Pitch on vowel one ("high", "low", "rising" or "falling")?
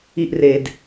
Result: high